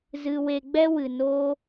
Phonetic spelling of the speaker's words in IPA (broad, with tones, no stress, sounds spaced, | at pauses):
z ɨ˧ w e˧ ɡ͡b ɛ˦ w ɨ˨ n o˦